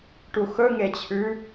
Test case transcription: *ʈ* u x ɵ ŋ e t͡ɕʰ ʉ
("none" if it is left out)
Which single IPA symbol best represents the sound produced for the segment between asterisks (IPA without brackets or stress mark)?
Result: ʈ